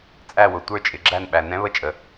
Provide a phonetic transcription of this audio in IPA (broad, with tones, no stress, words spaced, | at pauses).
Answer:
t͡sʼæ˦˨wʊ˨ tʷə˞˦˨t͡ʃʼɪ˨ɡ͡ǁæ˦˨n ɓæ˨nɛ̃˦˥βə˦˨t͡ʃʼə˨